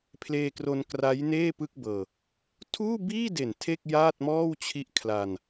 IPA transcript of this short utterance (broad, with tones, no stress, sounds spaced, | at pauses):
pʰ l eː˧ k r o˧ n k r a˦˥ j n eː˥˩ p ɯ˥˩ k̚ b ɤː˧ | tʰ uː˥˩ b iː˥˩ d e˨˩ n tʰ e˥˩ k̚ j aː˥˩ t̚ m ɔː˥˩ w t͡ɕʰ i˦˥ ʔ kʰ l a˧ n